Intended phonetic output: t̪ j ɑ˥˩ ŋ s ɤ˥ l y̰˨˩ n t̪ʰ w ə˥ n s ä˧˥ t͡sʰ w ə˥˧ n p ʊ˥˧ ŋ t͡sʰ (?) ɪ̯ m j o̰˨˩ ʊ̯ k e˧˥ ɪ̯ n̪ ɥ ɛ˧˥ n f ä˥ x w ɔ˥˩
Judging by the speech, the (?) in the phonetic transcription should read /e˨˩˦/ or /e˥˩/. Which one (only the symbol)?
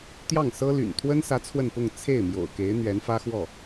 e˥˩